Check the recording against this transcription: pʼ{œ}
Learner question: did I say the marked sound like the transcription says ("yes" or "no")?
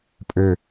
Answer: no